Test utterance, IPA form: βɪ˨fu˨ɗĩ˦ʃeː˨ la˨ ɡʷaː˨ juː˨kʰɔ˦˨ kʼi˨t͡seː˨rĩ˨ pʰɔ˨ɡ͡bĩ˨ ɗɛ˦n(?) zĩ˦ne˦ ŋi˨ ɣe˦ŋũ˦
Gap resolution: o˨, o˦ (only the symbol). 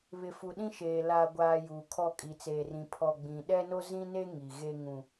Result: o˦